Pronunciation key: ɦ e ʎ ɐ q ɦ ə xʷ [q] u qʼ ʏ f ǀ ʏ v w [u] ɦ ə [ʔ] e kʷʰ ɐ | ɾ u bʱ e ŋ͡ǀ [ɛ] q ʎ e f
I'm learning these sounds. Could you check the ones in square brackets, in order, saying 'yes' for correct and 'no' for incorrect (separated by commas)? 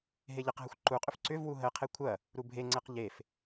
no, yes, no, yes